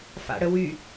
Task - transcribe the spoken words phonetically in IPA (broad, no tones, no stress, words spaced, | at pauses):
fa̰ɽəwy